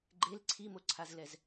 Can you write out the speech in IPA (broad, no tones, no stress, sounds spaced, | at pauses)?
ɡ͡ǃ e l ǀʰ i m o ǀʰ a z l ɛ z